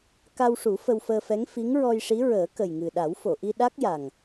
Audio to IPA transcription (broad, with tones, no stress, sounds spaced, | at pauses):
k a˧ w ʂ u˨˩˦ f ə˧ w f əː˧ f ɛ˧˥ ŋ f i˧˥ ŋ ɹ ɔ˧ j ʂ i˧˥ ɹ əː˨˩˦ k ə˨˩ j ŋ ɨ˨˩ ɗ a˨˩˦ w f o˨˩˨ ʔ i˧ ɗ a˦˥ k̚ j a˨˩ ŋ